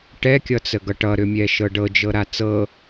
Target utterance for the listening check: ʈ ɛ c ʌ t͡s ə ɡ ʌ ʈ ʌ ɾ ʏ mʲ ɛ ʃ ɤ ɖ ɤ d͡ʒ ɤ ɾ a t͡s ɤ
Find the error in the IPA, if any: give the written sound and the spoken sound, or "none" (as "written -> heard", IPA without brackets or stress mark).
c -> kʲ